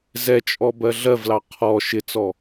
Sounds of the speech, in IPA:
zɛt͡ʃʼɔ bɜɮɜvlɑ qʰɔ ʃɪt͡sɔ

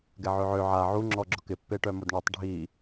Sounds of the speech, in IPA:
ɡɛʕøʕø ʕa ʕu ŋ͡ǁɔɡ͡ǁʊkɪ pːeʈœmʊdɳɛtˤ ɖʱi

